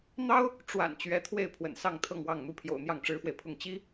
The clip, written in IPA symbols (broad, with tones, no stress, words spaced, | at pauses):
n̪ɑ˥ʊ̯ | ʈ͡ʂwa̰˨˩n t͡ɕɥɛ˧˥t̪ʰwe˥˩ɪ̯ pʰwə̰˨˩nsɑ˥˧ŋt̪ʰɤ˥˧ŋwɑ˥˩ŋ n̪u˥pʰjo̰˨˩ʊ̯ n̪jɑ˥˩ŋʈ͡ʂɻ̩˥fwe˨ɪ̯pʰʊ˥˩ŋ t͡ɕi˥